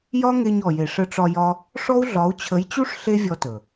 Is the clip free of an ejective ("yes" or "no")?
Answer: yes